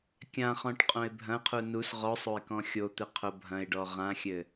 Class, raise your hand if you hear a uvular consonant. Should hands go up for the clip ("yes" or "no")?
yes